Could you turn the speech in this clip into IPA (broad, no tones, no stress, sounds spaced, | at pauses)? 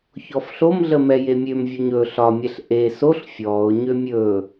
ç ɔ f ɬ o m ɮ ə m ɛ j e mʲ ø m vʲ o ɲ ɵ ɬ ɒ mʲ ɛ ɬ ʔ e s o ɬ fʲ ɔː ʊ̯ ɲ ø mʲ ɵː